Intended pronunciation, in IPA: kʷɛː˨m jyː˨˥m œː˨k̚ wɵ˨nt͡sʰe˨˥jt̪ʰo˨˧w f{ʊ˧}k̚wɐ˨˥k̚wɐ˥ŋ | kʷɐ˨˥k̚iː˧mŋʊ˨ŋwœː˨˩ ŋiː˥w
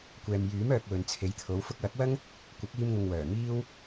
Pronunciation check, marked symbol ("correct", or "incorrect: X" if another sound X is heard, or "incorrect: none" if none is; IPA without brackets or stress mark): correct